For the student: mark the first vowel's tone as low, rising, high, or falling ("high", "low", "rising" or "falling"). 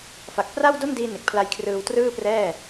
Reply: low